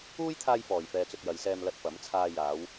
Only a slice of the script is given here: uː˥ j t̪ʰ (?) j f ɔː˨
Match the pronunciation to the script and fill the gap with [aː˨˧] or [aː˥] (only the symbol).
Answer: aː˥